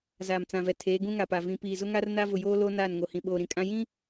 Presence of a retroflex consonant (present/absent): absent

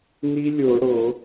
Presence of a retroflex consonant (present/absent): present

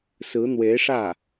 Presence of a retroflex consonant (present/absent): present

